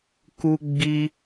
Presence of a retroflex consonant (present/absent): absent